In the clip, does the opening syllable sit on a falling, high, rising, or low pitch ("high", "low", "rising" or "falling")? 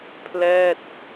falling